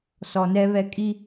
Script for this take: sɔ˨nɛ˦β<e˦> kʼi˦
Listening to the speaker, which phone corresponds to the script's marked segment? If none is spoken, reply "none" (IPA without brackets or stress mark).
ɛ˦